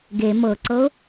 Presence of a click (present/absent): present